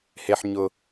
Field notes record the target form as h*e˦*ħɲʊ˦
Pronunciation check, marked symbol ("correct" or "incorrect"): correct